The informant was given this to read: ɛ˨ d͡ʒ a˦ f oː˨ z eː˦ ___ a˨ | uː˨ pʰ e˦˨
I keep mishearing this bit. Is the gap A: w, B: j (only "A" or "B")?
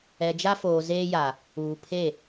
B